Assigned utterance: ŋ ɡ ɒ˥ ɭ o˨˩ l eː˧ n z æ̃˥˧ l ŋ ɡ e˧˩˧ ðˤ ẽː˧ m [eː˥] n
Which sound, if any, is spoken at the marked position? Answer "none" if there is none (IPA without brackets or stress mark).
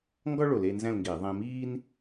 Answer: iː˥